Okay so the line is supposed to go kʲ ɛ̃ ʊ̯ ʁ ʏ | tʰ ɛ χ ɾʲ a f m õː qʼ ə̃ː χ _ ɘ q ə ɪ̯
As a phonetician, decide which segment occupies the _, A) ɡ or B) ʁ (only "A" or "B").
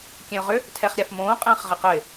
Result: B